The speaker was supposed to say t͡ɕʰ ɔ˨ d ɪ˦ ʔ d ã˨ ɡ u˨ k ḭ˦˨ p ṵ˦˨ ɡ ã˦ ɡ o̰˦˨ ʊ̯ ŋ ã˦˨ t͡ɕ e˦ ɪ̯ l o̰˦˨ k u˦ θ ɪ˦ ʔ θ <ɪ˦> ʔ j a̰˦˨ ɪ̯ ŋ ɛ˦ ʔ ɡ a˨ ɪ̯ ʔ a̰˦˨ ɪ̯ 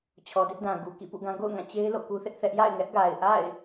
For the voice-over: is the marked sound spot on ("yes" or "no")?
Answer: no